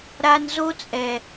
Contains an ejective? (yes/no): yes